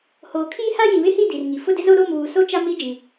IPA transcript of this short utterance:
h oː˨ kʰ iː˦ h a˦ j ĩ˨ β ɪ˦ h i˦˨ d i˨ r ŋ i˨ f ʊ˦˨ d ɪ˦ z o˦ ɾ o˦˨ m β uː˨ s o˦ t͡ʃ a˦ m i˦ d͡ʒ ĩ˨

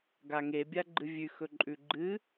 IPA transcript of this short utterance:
ɡ a ŋ e bʲ a ɡ͡ǃ ɨ vʲ ʉ x ɵ ǃʼ ʉ ɡ͡ǃ ɨ

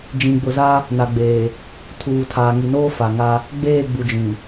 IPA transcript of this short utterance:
d͡ʒ ĩ˨ ɡ͡b ʊ˨ z a˦ | n a˨ ɡ͡b eː˨ | tʰ uː˨ tʰ aː˨ ŋ i˨ n oː˦ f a˨ ŋ a˦ | ɡ͡b eː˦˨ ɡ͡b u˨ d͡ʒ ĩ˨

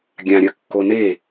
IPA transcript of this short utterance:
ɡʲ ã ɾʲ ɐ kː o n e

